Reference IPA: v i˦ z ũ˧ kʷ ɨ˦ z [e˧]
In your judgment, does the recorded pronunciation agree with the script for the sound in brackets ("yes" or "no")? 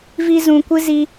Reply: no